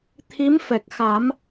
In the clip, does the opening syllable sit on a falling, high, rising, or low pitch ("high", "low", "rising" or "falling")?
rising